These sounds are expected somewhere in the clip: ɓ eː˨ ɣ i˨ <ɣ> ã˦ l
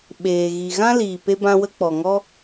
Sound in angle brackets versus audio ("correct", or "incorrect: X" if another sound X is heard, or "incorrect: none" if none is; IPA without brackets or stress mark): correct